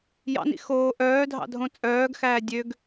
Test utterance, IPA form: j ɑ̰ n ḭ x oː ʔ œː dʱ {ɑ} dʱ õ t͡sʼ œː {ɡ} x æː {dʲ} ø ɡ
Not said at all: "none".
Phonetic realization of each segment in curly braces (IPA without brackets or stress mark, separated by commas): ɑ̰, ɡ, dʲ